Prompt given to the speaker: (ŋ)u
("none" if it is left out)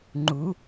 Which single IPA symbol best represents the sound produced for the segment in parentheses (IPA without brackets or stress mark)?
ŋ͡ǃ